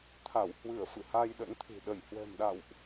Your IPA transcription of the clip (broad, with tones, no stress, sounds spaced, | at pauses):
t̪ʰ a˧˩ w h w ɨ˧˩ ə̯ f ɨ̰˧˨ h a˧ j ɗ ə̰˧˥ n t̪ʰ ɨ̤˨˩ ɗ ə˧˩ j h w ɛ̤˨˩ m ɗ a̰˧˨ w ʔ